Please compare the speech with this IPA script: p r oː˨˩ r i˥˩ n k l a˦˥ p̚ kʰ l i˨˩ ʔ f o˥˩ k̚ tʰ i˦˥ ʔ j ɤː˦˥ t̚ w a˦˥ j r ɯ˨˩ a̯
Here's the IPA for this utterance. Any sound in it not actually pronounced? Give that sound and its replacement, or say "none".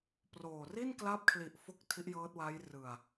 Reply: none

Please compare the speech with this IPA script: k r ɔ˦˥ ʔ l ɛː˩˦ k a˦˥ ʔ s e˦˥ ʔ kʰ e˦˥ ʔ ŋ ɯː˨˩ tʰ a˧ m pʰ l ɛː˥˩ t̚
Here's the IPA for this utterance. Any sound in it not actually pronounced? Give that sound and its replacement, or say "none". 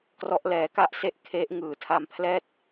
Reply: none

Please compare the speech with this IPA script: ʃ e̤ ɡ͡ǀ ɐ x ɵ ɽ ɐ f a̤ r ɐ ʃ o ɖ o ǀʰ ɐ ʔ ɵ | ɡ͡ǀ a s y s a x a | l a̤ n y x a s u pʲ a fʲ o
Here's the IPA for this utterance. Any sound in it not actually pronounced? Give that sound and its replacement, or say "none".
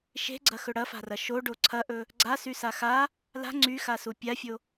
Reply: n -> ŋ͡ǀ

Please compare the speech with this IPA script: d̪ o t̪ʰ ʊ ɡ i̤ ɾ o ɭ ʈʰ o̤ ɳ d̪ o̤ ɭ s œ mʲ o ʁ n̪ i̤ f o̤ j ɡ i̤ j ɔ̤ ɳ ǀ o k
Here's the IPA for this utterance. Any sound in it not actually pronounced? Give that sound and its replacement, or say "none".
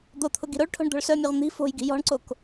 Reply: none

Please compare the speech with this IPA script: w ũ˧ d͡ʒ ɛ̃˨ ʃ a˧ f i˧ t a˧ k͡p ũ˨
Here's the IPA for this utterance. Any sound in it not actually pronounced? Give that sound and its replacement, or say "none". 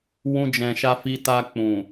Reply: none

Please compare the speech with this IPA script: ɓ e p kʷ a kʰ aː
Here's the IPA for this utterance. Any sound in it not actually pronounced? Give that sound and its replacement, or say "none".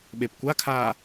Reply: none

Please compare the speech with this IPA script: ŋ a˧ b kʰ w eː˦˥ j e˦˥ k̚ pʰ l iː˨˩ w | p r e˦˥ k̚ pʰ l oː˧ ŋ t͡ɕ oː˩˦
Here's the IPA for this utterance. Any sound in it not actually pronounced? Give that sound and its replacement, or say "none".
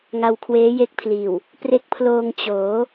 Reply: b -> w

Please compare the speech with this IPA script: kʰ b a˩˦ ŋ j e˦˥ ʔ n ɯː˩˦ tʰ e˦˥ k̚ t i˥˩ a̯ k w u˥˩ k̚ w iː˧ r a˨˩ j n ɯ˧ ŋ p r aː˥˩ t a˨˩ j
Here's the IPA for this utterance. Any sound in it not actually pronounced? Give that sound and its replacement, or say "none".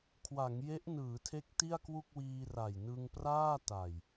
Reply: b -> w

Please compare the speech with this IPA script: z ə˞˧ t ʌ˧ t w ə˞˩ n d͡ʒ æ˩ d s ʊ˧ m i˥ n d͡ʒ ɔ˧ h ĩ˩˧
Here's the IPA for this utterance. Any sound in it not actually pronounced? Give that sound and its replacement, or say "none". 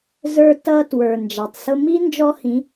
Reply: d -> tˤ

